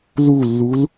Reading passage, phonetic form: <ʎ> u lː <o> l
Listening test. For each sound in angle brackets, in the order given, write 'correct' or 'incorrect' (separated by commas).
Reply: incorrect, incorrect